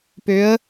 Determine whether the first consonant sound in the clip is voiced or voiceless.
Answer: voiceless